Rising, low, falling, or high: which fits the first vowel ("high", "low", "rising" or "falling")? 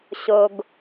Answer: low